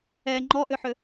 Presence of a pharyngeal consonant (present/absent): present